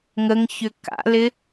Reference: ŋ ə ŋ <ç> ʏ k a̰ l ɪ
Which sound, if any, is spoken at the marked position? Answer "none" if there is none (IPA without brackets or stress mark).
ç